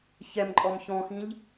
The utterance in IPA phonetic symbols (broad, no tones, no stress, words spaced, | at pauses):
çɛmǃʼɔm çɔ̃xĩʎ